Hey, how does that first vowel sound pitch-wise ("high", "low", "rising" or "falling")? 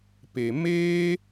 low